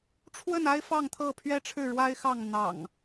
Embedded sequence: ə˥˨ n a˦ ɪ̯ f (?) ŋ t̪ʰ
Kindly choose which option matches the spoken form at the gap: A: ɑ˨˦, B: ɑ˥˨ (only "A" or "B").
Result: B